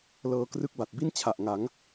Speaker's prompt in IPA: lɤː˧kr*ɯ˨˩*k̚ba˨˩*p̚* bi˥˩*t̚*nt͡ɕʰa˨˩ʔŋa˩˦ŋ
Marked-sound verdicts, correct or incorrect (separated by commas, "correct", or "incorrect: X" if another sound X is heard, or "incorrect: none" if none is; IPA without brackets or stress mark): incorrect: ɯ˦˥, incorrect: t̚, incorrect: none